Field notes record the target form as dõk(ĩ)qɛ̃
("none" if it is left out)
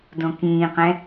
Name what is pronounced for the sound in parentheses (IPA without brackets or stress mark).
ĩː